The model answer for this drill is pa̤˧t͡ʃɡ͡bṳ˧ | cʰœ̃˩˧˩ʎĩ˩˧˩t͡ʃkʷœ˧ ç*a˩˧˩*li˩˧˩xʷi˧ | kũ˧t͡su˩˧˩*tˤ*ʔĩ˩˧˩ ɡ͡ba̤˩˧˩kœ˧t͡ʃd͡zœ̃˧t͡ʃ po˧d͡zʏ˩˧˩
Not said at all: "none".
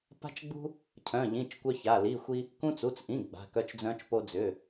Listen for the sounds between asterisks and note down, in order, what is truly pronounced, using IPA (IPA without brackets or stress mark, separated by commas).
a˩˧˩, t͡s